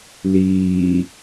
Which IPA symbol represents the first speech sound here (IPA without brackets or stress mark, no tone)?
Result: l